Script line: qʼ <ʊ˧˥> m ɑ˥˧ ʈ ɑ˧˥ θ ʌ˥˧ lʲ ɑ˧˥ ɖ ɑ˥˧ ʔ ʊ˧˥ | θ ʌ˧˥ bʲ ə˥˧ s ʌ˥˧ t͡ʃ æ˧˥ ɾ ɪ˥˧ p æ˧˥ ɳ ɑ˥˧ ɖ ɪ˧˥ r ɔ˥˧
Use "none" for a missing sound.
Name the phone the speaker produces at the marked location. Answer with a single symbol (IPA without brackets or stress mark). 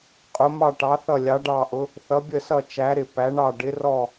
ʊ˧˥